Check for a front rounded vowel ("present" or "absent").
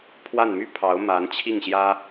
present